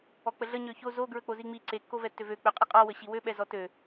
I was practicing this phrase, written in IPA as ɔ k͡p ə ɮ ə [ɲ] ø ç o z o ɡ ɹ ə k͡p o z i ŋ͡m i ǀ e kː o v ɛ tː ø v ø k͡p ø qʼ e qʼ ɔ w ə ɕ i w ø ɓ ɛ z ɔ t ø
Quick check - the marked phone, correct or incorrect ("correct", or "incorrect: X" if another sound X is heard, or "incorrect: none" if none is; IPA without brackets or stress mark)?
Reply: correct